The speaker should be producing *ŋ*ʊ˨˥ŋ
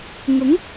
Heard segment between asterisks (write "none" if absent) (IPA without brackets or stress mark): ŋ